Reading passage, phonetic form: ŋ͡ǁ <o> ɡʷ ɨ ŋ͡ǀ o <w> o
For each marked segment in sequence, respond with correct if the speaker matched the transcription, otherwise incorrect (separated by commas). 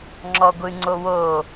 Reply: incorrect, correct